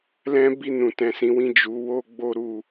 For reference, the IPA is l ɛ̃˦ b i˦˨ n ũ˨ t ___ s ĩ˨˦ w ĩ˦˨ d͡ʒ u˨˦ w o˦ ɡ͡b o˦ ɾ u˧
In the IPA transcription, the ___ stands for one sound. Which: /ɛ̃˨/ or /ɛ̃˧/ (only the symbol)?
ɛ̃˨